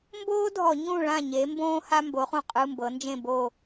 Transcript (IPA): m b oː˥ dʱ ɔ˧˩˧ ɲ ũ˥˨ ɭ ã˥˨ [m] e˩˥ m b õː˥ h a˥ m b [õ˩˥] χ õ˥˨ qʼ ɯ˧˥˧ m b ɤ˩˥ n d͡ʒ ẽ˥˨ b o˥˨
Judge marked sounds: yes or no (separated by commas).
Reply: no, no